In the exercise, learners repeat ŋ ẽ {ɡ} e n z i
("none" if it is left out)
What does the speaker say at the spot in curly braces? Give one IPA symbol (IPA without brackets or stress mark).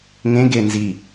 ɡ